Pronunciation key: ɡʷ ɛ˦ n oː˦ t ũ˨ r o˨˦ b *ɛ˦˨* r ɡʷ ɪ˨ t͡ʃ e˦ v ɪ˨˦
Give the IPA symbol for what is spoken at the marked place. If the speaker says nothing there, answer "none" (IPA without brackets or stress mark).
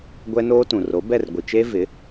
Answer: ɛ˦˨